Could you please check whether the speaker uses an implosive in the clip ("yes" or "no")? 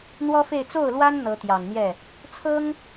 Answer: no